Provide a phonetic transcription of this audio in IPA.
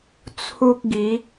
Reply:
t͡sʰ u˦ k̚ ɡ i˨˦

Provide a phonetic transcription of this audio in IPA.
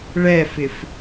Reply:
ɭ ɛ f ɪ f

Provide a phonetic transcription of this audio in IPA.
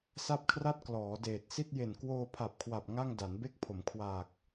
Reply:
s a˥˩ p̚ kʰ r a˥˩ t̚ k l ɔː˩˦ d eː˨˩ t̚ s i˥˩ t̚ j e˨˩ n k w oː˧ pʰ a˨˩ p̚ kʰ w a˨˩ p̚ ŋ a˥˩ ŋ d a˩˦ n b e˦˥ k̚ pʰ o˩˦ m kʰ w aː˨˩ k̚

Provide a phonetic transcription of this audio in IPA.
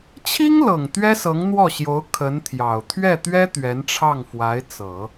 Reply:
t͡ɕʰ i˥ ŋ l ɤ˨˩ ŋ t̪ ɥ ɛ˥ s ɤ˧˥ ŋ n̪ w ɔ˥˩ ɕ j o˧˥ ʊ̯ kʰ ə˧˥ n t̪ʰ j ɑ˨˩ ʊ̯ t̪ʰ ɥ ɛ˥˩ t̪ ɥ ɛ˥ t̪ ɥ ɛ˧˥ n ʈ͡ʂʰ ɑ˥˩ ŋ f w a˧˥ ɪ̯ t͡s ɤ˨˩˦

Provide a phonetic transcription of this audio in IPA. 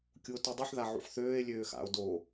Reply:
kʲ u o̯ t u dˤ i ħ ð a ʕ ṵ ħ θ øː e̯ lʲ øː x a̰ o̯ d o

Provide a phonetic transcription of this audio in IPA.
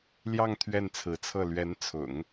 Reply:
l j ɑ˥˧ ŋ t̪ʰ ɥ ɛ˥˩ n t͡sʰ ɹ̩˧˥ t͡sʰ ɤ˥˩ l ɥ ɛ˧˥ n t͡sʰ ʊ̰˨˩˦ ŋ

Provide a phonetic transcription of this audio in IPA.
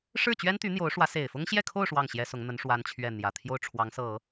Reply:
ʂ ɻ̩˥˩ t͡ɕ ɥ ɛ˥ n t̪ y˧˥ n̪ j o˧˥ ʊ̯ ʂ w ä˧˥ s e˨˩ ɪ̯ f ʊ˥ ŋ ɕ j ɛ˥˧ kʰ o˥˧ ʊ̯ ʂ w ɑ˥˩ ŋ ɕ j ɛ˥ s ʊ˧˥ ŋ n̪ ə˧˥ n ʂ w a˥ n t͡ɕʰ ɥ ɛ˥˩ n̪ j ä˨˩ t̪ʰ j o˥˩ ʊ̯ ʈ͡ʂʰ w ɑ˧˥ ŋ s ɤ˨˩˦

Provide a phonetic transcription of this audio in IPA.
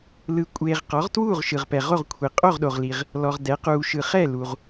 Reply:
l ɯ˨ kʷʼ eː˨ ʁ q ɔ˩˥ ʁ t w uː˥˨ ʁ ʃ ɯ˨ ʁ p ɛ˨ ʁ o˥˨ ʁ kʷʰ i˨ qʼ o˥˨ ʁ ɗ o˨ ʁ l i˨ ʁ | l ɔ˨ ʁ d ɛ˩˥ q uː˨ ʃ ɯ˨ χ ɛ˥˨ l u˨ ʁ

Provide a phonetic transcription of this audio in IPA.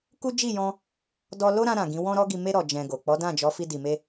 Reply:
k u˦ d͡ʒ i˦˨ j ɔ̃˧ | d ɔ˧ l o˦ ɾ ã˧ ɾ ã˨ ɡ ĩ˨˦ w ɔ̃˦ ɾ ɔ˦ ɡ i˧ m e˦ ɾ ɔ˧ d͡ʒ ɛ̃˧ ɡ o˨ k͡p ɔ˨˦ d ã˦˨ d͡ʒ ɔ˨˦ f i˧ d i˨ m e˧

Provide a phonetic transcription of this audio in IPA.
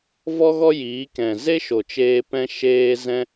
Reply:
v ɔ˦ ɣ ɔ˦ j iː˨˦ k ɛ̃˨ z e˦ ʃ o˨ t͡ʃ eː˧ p ɛ̃˧ ʃ eː˧ z ɛ̃˧

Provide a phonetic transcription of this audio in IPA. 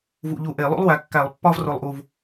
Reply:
v ṵ˧˩˧ ʎ u˧˩ ʔ e˧˩˧ lˠ ṵ˥ lˠ w æ˨˦ kː æ˧˩˧ lˠ pː ɒ˥ v r o˧˩ lˠ ʔ u˧˩ v

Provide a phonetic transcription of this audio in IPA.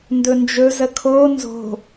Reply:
n d ɵ n d͡ʒ ɵ z ə kʰ o n z o̤

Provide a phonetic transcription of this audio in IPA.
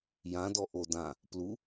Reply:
j ã d ɔ ʔ o d ã | p l u

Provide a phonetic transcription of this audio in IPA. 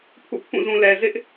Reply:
pʰ ṵ˦˨ pʰ ũ˦˨ z ũ˨ l ɛ˨ z ɪ˦ ʔ

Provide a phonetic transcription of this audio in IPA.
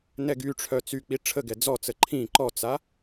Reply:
n ɛ ɡ y ʈ͡ʂʰ œ t͡s y k͡p i ʈ͡ʂʰ ə ɡ ɛ d͡z ɔ t͡s ə ǃʰ ĩ ǃ ɔ t͡s a

